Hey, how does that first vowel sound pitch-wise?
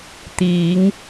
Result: rising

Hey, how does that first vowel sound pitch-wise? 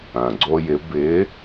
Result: low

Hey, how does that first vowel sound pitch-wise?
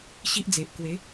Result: high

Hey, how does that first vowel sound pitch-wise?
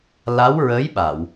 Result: rising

